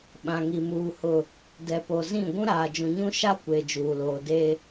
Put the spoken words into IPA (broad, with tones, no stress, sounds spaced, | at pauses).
ɓ ã˨ ŋ i˨ m uː˨ h ʊ˨ | d ɛ˨ p o˨ z ĩ˦˨ ɡʷ ũ˦ ɾ aː˨ d͡ʒ ũ˨ ɲ ũ˦ ʃ a˦ kʷ e˨ d͡ʒ uː˨ l oː˨ d e˦